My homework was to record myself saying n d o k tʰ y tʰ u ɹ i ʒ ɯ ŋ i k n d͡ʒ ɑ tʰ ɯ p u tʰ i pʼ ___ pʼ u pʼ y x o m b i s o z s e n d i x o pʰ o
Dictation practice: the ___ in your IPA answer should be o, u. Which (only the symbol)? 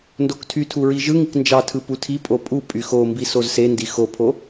o